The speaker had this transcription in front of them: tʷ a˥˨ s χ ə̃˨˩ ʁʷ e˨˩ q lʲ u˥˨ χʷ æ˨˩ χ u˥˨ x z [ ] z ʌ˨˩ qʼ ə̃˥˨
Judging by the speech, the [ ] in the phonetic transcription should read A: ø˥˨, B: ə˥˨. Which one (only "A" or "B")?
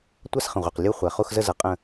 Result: B